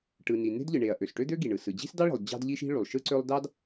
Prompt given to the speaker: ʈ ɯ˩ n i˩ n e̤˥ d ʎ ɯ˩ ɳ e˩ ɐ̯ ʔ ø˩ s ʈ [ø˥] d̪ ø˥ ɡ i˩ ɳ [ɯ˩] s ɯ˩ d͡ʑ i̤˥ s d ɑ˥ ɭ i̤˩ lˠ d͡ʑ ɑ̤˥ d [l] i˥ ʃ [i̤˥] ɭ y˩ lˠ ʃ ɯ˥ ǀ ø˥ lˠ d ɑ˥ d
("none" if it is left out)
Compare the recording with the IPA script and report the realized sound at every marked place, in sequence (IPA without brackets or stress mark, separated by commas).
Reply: ø˥, ɯ˩, ʎ, i̤˥